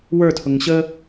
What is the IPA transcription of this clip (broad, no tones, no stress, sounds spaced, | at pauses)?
w ə˞ tʰ ʊ ŋ ɕ ə